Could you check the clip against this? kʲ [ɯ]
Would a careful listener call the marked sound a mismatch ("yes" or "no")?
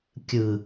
no